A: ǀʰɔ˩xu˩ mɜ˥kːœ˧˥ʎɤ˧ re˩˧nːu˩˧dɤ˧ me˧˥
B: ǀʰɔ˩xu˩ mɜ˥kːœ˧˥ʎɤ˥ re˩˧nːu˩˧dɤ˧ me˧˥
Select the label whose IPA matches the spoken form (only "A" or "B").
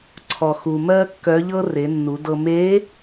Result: B